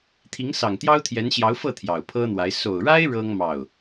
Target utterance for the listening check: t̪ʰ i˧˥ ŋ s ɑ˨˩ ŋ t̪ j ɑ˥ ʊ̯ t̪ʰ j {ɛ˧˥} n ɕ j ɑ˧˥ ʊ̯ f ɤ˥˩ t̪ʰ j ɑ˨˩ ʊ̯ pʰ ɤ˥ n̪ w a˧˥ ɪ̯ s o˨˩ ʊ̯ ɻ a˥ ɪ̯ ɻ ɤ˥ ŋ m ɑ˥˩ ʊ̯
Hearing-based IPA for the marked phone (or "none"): ɛ˧˥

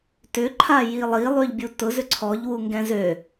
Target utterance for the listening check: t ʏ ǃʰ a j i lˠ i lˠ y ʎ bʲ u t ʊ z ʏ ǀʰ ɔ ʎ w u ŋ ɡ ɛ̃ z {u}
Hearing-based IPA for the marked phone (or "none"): ø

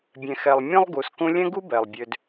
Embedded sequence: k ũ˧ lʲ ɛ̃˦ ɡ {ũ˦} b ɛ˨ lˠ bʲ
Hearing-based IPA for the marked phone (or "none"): u˦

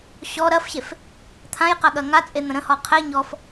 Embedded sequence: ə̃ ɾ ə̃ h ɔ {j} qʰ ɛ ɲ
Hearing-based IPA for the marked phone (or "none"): none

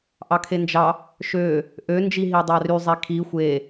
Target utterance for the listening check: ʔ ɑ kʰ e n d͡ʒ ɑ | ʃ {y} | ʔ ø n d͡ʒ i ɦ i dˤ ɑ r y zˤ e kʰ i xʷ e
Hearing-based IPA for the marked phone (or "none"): ø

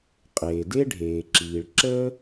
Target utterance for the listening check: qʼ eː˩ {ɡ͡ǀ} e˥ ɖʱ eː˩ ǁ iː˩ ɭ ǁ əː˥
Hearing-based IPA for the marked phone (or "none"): d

